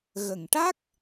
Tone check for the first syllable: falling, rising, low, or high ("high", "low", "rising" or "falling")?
low